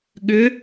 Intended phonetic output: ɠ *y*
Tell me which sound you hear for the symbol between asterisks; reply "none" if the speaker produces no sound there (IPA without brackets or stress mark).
ʏ